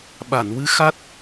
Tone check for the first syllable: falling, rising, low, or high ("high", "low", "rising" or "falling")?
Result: low